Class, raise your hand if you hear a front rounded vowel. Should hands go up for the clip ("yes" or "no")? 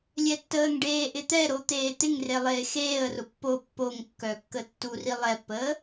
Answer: yes